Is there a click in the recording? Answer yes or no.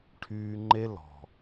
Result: yes